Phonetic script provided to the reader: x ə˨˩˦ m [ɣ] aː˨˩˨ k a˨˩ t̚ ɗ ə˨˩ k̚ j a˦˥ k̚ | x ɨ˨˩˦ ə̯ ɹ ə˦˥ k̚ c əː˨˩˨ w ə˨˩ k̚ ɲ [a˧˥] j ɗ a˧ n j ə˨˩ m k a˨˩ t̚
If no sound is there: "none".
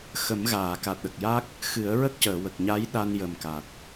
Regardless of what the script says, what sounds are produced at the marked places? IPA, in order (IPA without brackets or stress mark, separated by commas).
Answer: ɣ, a˧˥